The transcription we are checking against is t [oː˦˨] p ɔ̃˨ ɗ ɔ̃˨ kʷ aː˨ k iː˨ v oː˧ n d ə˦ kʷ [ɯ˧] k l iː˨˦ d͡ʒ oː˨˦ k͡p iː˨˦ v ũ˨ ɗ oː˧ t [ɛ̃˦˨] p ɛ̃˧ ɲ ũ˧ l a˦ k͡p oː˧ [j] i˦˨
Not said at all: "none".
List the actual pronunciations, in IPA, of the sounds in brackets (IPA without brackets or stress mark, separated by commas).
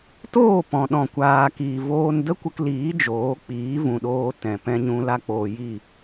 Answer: oː˦˨, ə˧, ɛ̃˨, j